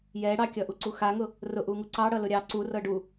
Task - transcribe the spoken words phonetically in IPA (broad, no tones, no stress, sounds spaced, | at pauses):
j ɛ ɽ ɑ kʲ ʌ ʔ u ǀ u x a ŋ ʊ | r ʊ ʔ u ŋ u ǀ ɑ ɽ ʌ l ʊ ɾʲ ɑ ǀ u r ɤ ɖ u